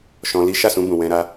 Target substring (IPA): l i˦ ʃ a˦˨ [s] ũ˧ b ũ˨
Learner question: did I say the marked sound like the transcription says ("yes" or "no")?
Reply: yes